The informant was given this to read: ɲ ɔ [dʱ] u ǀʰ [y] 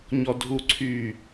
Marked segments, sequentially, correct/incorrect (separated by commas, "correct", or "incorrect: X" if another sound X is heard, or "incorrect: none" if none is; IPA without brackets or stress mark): correct, correct